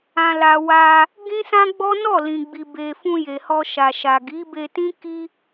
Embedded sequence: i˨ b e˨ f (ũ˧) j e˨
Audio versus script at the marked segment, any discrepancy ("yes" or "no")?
no